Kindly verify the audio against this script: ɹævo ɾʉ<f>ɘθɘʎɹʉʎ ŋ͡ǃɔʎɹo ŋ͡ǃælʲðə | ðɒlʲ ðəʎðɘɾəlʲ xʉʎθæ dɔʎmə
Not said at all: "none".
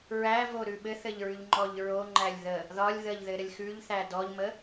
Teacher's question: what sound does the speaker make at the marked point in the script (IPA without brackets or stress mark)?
ɓ